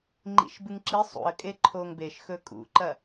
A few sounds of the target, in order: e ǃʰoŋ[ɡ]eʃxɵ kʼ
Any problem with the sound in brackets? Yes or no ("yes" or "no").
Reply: yes